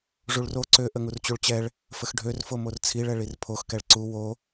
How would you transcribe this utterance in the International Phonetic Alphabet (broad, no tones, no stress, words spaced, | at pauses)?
ʐuɭro ǀø ʔəŋurt͡ɕuɭt͡ɕɛɭ | fəxɖʱørfo mort͡sʰiɭɛ ɭirpʰoxkɛɭ ǀu wo